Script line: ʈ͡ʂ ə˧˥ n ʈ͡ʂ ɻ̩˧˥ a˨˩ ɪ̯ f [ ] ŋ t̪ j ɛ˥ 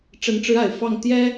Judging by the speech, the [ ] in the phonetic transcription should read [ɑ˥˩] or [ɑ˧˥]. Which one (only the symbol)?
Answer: ɑ˥˩